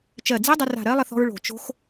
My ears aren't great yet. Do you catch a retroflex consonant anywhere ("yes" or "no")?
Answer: yes